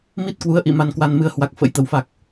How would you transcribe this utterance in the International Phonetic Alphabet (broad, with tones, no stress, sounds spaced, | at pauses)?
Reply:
m i˦˥ t̚ k w u˨˦ ə̯ ʔ ḭ˧˨ m a˧ n k w a˧ n m ɨ˧ ə̯ h w a˨˩ k̚ f ə̰˧˥ j t̪ ə˧˩ w f a˨˩ k̚